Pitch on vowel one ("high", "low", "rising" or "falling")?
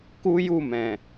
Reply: high